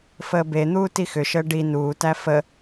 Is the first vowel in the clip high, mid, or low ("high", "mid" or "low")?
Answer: mid